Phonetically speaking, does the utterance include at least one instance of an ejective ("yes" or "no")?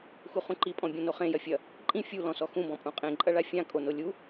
yes